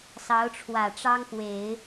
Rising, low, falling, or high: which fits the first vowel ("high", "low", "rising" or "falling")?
rising